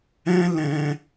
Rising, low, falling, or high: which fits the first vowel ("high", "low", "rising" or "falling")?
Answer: high